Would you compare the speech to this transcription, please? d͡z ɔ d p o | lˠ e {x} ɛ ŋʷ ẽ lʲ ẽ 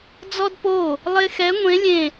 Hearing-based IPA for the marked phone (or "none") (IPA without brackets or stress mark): x